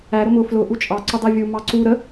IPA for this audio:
æ ɾʊmʊ flʊ ʔut͡ʃʼɑ ǀʊdˤɛvʲu mɑǀu ɾə

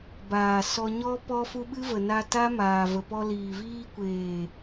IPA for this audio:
baː˨ sɔ˧ɲɔ˦ pɔ˧fu˧ ɓɨ˦və˨na˧ ta˦maː˨və˨pɔ˧ liː˨viː˧kʷeː˨

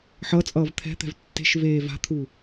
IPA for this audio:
ħʌt͡sʼʌːv t̪ʰɛ̤t̪ɛ̤v tːe̤ʃveː va̤t̪ʰu

